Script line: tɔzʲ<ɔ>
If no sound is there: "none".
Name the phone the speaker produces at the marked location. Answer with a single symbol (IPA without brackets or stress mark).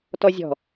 ɔ̤